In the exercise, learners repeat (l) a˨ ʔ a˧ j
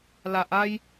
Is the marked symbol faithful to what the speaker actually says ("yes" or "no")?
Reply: yes